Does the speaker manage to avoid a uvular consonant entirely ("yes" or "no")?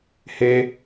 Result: yes